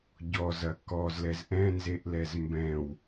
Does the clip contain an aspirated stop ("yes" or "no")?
no